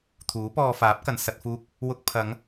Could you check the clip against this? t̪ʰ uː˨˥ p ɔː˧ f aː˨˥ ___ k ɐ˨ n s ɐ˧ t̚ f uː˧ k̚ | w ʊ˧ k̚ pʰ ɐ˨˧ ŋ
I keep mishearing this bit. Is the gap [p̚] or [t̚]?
p̚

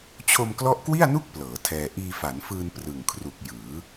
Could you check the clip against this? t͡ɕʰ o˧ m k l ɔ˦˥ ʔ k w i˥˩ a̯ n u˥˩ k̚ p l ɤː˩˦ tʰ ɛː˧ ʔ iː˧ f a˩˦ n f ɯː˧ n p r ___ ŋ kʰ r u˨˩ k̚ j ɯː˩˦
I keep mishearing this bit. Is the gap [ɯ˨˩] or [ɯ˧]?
ɯ˨˩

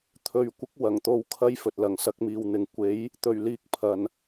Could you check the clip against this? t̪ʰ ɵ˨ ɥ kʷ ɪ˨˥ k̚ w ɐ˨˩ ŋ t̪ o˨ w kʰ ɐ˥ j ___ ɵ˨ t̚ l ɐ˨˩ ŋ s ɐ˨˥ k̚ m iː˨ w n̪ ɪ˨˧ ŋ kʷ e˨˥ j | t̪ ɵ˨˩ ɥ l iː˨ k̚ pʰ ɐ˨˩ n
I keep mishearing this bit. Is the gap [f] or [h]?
f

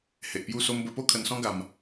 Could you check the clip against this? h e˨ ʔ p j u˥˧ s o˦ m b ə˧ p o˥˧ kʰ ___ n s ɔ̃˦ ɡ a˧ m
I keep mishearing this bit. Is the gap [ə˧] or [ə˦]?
ə˧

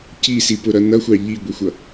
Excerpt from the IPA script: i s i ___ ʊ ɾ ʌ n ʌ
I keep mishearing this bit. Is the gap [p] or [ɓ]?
p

